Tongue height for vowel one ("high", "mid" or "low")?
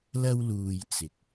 low